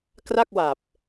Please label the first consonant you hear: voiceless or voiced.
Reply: voiceless